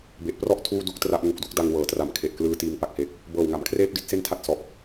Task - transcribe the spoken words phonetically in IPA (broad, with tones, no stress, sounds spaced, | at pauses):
b e˨˩ ʔ p r ɔ˥˩ ʔ tʰ uː˥˩ d u˥˩ k̚ t r a˦˥ ʔ ŋ u˨˩ k̚ d u˦˥ k̚ d a˧ ŋ w ɤː˩˦ t r a˩˦ m kʰ e˨˩ ʔ k l ɯː˧ t iː˧ ŋ p a˨˩ k̚ h e˨˩ k̚ | b ɤː˨˩ w ŋ a˩˦ m kʰ r eː˥˩ p̚ d i˥˩ t̚ s e˥˩ n tʰ a˥˩ t̚ s ɔ˨˩ ʔ